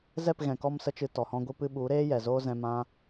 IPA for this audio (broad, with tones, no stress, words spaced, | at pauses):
zɛ˦˨pɣɛ̃˨kɔ˧m sə˦t͡ʃɨ˧ tɔ˨hɔ̃˧ɡʷɨ˧ pɨ˧ɓu˨˦ɾeː˦ jɛ˨zoː˦zɛ̃˧ mã˦